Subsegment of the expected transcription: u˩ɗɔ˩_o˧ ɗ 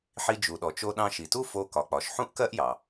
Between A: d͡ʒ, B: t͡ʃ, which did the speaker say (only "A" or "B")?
B